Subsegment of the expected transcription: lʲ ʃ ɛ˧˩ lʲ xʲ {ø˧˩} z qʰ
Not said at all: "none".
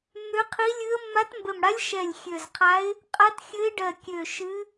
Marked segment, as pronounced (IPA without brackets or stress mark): ø˧˩